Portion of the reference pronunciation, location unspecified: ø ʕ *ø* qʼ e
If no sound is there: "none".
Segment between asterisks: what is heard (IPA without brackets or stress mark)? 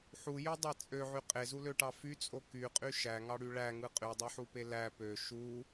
y